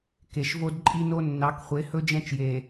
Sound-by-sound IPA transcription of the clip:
ke˨ʃ vo˦dǃʼi˦no˦ nːɑ˨˦kχʷe˨˦hɵ˦ d͡ʒɛ̃˦t͡ʃje˨

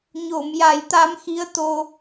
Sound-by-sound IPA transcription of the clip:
ɲo˨˩˨mja˨˩˦jt̪a˧˥mxi˧˥ə̯ t̪o˧

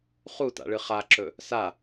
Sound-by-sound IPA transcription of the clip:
χuta̰ɭɨ χaǁɵ | sa

